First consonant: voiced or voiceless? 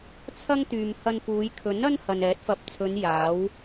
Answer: voiceless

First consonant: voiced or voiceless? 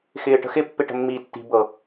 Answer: voiceless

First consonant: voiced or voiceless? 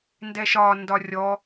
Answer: voiced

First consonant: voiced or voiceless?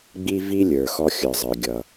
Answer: voiced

